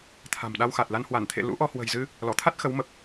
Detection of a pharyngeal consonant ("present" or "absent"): absent